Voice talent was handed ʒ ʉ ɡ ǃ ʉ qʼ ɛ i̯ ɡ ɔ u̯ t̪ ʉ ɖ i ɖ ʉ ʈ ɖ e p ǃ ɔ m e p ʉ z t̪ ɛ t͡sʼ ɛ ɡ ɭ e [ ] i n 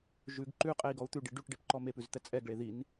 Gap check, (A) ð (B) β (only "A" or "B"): A